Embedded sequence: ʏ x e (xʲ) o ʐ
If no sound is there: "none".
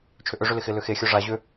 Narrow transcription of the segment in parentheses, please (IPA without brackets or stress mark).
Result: xʲ